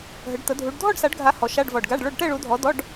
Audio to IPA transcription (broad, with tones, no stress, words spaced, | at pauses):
ɦə˨˦ɖ t̪ə˨˦ dʱu˨˦ɖ dʱɔ˥˧ɖsa˨˦ɖɡʱa˨˦ hɔ˨˦ʃa˧˥˧ɖ vɔ˨˩ɖɡa˧˥˧ɖɭo˥˧ɖ ʈɛ˥˧ɭu˨˦dʱɔ˨˦ dɔ˧˥˧ɖ